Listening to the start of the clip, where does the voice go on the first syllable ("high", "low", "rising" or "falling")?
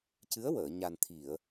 rising